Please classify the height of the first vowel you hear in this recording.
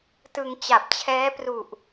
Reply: high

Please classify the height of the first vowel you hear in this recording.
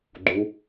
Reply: high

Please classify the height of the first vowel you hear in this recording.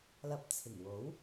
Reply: low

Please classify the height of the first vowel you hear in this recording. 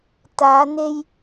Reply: low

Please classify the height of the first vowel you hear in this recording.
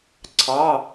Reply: low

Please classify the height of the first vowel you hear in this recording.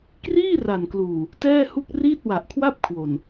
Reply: high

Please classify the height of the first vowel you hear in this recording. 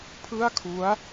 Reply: high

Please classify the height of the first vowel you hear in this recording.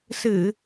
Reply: high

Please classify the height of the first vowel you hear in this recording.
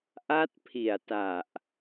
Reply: low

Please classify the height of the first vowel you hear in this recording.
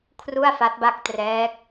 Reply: high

